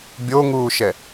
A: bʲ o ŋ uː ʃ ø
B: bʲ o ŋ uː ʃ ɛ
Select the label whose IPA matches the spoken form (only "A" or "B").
B